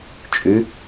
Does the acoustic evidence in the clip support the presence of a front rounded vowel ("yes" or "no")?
yes